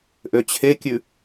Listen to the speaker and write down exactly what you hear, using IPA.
ʔ ø t͡ɕʰ e kʲ ʉ

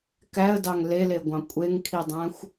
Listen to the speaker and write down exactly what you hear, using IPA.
k æ ə̯ d ɑ ŋ l e l e ɡʷ ɑ̃ kʷʼ e ŋ kʰ i dˤ æ̃ xʷ

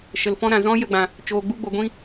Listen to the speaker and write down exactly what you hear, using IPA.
ʃ ə˨ l f ɔ̃˦ ɾ ã˨ z ɔ̃˦ j ə˦˨ ɡ͡b ã˨ | t͡ʃ oː˨ ɡ͡b u˧ ɡ͡b o˨ ɡʷ ĩ˦

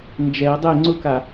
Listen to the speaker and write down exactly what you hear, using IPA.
n d͡ʒ ɛ ə̯ dˤ e ŋ͡ǀ ʊ k a

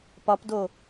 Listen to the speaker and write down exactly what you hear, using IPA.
p ɒ p d o

